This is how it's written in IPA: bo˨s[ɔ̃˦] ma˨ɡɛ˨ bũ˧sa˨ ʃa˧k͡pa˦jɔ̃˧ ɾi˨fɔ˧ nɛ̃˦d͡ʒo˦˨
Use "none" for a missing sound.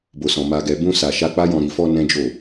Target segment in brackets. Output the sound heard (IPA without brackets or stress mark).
ɔ̃˨